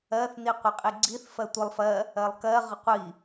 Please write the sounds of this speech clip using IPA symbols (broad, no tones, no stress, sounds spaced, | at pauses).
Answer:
ɜ θ n i qʷ ɪ qʼ i ɡ͡ǀ i θ f ɜ tʷ ɪ lˠ f ɜ | ɜ lˠ k ɜ ʁ ə qʷ i